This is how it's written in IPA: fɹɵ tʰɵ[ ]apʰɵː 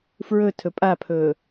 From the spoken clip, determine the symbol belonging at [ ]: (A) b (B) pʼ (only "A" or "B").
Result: B